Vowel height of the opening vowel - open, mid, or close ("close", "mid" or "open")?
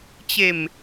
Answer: mid